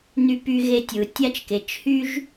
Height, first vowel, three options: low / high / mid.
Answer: high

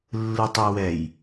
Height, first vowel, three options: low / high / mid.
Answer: high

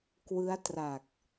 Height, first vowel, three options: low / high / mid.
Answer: high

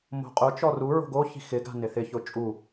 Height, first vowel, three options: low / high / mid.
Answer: mid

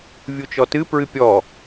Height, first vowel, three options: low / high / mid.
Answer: high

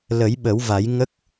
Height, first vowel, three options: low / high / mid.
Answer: mid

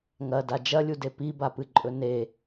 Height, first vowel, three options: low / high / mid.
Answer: low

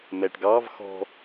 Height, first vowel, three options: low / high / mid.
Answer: mid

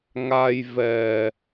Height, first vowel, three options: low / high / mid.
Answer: low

